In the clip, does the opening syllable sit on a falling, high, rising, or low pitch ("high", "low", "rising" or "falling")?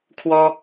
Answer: high